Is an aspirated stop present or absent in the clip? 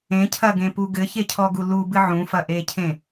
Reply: present